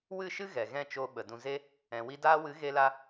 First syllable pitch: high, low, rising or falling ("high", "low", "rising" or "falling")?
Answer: falling